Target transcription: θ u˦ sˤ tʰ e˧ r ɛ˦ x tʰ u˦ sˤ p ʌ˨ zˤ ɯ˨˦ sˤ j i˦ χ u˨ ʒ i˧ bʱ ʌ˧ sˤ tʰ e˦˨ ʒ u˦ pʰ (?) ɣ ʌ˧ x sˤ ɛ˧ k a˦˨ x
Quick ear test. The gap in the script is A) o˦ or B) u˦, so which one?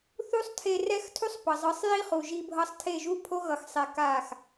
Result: A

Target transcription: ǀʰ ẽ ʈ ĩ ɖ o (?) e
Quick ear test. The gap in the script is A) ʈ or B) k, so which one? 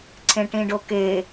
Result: B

